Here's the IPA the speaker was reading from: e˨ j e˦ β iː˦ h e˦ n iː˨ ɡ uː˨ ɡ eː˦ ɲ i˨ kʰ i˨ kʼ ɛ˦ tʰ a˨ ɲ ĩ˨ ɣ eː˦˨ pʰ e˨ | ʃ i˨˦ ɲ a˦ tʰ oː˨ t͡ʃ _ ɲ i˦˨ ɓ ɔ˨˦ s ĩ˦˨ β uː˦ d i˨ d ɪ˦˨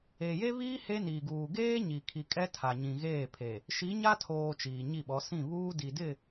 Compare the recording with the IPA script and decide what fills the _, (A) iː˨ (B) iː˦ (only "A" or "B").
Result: A